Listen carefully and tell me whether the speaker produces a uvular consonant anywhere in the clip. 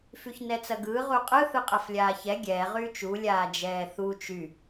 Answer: yes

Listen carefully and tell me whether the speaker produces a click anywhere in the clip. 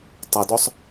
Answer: no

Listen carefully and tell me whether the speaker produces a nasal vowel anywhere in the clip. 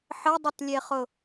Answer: no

